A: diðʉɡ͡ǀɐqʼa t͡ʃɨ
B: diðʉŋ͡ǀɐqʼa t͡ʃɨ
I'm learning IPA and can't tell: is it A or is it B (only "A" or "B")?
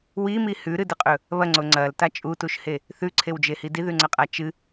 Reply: B